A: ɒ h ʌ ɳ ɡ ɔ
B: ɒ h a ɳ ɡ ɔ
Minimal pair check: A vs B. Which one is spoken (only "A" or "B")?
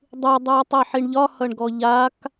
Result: A